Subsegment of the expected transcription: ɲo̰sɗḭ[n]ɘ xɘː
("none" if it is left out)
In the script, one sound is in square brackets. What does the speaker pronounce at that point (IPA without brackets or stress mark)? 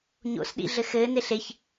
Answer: ɮ